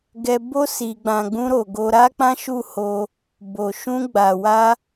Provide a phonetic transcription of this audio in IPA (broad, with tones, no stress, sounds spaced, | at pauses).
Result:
ɡ ɛ˧ b o˦ s i˧ ɡ͡b ã˧ ɡ͡b ũ˧ ɾ o˨ ɡ o˧ ɾ a˦ k͡p ã˦ ʃ u˦˨ h o˧ | b o˨ ʃ ũ˧ ɡ͡b a˨ w a˧